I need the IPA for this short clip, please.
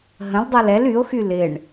ɦə̃ldˤal ɛl yo̯xy lɪɳ

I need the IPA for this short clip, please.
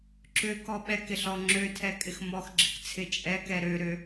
ǁøkɔ ɓɛkɪɬɔ ŋ͡ǁøtʰɛkʼɪx mɔxɡ͡ǁɪkt͡sʰɪ t͡ʃʼɛkɛ ɾøɾø

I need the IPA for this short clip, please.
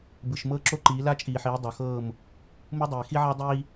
bɯ˨ʃ mɤː˦ǁo˦ǃiː˨˦ la˦t͡ʃʼiː˨ħiː˨˦ dˤo˨xɤː˦˨m | mu˦dˤiː˨ xi˦ʕa˦ dˤiː˦

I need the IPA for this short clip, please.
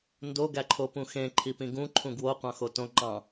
ndo ɡæǃʰopũxẽ ǃʰipĩɡũ ǃʰũɡwo qʷɑ̃xotõ ŋ͡ǃɑ̃

